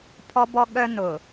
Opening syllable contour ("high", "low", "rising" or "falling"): high